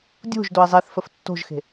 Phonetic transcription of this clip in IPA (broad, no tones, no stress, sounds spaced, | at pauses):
dʲ o̤ ʒ d o e̯ zˤ e θ f ə f tː o̤ ʒ x e̤